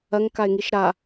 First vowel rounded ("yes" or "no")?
no